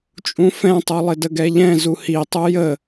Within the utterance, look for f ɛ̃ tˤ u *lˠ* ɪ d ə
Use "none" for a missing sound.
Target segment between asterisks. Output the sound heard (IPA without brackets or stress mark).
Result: lˠ